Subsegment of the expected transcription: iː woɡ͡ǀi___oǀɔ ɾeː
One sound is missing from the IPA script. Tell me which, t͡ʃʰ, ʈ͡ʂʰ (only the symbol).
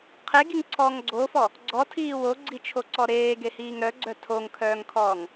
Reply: t͡ʃʰ